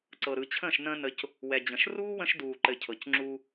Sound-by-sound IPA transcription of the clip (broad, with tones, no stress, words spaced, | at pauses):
ǀɤ˨ɾɯ˨t͡ɕʰə̃ː˦˨ʃ nə̃ː˧ nə˧c | wɛ˨d͡ʑə̃˨ʃ ruː˦wə̃˧ʃduː˨ ǃɘ˨cʰɤ˨c ŋ͡ǁu˧